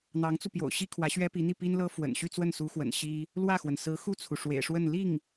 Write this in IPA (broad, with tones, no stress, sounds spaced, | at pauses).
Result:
n̪ ɑ˧˥ ŋ t͡s u˧ p j o̰˨˩ ʊ̯ ɕ i˥ kʰ w ä˧˥ ɕ ɥ ɛ˥ p i˧˥ n̪ i˥˩ p i˥ n l ɤ˥ f w ə̰˨˩ n ɕ y˥˧ t͡s w ə˥˩ n s u˧˥ x w ə̰˨˩ n ɕ i˥ | l w ä˥˩ x w ə˩ n s ɹ̩˧˥ x u˥˩ t͡sʰ u˩ ʂ w ḛ˨˩ ɪ̯ ʂ w ə˥˧ n l i˥˩ ŋ